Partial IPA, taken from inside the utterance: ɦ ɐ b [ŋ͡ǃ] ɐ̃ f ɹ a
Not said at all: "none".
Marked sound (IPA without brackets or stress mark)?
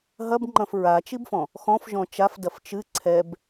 ŋ͡ǃ